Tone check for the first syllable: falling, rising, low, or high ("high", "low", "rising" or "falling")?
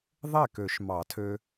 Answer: falling